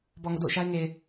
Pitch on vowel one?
low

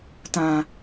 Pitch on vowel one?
low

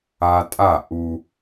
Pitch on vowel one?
high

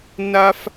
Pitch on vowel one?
high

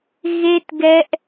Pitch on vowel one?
high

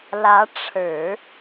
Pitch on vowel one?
rising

